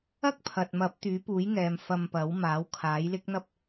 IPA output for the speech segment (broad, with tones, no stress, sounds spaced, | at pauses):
ɐ˥ k̚ pʰ ɐ˨ t̚ m ɐ˨˥ p̚ t̪ yː˨˥ p uː˨˥ j ŋ ɛː˨ m f ɐ˧ m p ɐ˨˥ w m aː˨˥ w kʰ aː˨˥ j l ɪ˥ k̚ n̪ ɐ˥ p̚